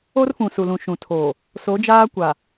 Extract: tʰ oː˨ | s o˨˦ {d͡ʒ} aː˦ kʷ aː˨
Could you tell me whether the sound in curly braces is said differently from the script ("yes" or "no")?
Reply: no